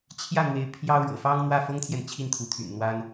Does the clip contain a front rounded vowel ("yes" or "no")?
yes